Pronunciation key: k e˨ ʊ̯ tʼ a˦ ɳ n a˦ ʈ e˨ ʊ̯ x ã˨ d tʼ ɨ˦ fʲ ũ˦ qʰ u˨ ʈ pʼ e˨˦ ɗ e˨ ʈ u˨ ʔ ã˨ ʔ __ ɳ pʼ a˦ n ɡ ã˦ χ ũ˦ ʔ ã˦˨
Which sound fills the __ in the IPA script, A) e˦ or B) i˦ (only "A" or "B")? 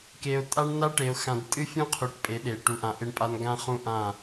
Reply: A